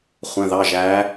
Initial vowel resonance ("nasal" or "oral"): nasal